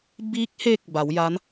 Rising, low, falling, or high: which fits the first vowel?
rising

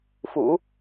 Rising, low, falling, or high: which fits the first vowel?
low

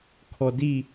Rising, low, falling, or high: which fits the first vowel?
low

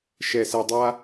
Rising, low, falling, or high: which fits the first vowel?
low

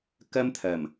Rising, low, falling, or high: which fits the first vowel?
high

